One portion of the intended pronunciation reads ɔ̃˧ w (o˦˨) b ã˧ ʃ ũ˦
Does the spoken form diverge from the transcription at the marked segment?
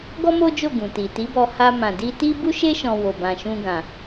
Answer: yes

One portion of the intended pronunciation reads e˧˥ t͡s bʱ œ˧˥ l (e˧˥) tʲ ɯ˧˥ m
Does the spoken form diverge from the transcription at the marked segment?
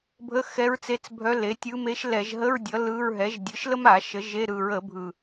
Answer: yes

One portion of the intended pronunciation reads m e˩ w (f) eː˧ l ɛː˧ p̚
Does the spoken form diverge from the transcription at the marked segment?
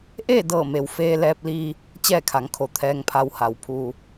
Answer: no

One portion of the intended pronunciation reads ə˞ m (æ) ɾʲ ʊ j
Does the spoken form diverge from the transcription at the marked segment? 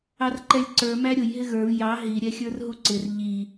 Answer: no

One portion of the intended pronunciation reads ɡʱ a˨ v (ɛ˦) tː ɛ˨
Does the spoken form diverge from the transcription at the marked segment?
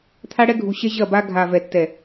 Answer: yes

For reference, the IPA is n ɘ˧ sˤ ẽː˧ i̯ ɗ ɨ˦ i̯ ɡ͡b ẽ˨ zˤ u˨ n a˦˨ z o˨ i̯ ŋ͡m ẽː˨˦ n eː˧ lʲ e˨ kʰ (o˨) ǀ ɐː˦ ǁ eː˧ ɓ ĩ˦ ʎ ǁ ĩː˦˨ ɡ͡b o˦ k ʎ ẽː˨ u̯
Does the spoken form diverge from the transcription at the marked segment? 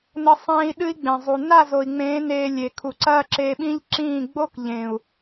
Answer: yes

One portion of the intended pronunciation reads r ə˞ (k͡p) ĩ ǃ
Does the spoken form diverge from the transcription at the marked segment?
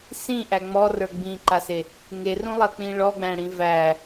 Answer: yes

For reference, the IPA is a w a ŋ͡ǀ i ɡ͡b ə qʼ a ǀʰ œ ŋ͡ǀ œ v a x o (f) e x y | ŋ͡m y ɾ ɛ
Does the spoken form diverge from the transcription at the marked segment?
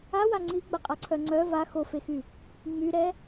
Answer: no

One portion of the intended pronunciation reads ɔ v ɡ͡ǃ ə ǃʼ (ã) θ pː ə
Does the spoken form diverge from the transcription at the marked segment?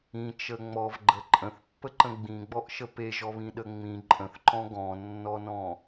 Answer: yes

